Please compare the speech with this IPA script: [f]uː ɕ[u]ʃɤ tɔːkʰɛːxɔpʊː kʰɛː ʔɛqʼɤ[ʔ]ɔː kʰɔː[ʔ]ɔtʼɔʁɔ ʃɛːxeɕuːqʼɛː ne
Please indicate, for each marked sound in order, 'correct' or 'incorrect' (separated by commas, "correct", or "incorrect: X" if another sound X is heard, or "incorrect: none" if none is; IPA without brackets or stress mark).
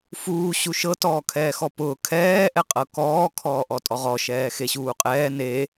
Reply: correct, correct, incorrect: k, correct